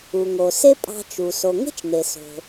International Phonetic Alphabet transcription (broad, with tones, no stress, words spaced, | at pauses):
u˩ŋo˩ se˥pʼɑ̤˧t͡ʃu˩ so˩ŋe̤˥t͡ʃ n̪e˩so̤˩